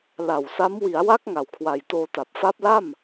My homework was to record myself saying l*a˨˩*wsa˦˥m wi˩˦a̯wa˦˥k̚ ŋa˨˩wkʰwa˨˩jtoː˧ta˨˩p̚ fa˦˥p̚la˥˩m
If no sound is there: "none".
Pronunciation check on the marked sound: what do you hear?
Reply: a˨˩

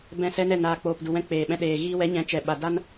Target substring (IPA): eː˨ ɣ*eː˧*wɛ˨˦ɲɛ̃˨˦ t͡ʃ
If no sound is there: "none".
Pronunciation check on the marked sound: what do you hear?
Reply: iː˧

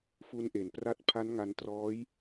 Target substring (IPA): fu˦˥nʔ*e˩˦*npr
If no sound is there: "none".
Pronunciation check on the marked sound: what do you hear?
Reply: e˩˦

